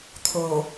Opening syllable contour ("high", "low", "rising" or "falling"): low